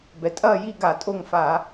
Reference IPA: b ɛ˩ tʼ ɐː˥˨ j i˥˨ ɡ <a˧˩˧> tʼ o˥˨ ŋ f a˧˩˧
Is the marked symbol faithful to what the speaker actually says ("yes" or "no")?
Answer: yes